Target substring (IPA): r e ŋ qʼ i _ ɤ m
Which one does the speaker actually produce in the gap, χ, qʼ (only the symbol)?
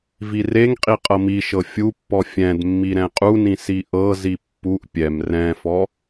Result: qʼ